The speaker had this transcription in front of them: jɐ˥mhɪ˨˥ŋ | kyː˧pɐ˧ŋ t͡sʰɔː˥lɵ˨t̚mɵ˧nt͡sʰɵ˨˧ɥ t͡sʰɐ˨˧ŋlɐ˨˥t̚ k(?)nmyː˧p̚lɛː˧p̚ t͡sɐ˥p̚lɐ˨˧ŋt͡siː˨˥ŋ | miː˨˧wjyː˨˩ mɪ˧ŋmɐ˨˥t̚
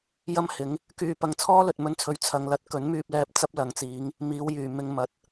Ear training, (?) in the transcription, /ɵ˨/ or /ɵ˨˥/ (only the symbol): ɵ˨˥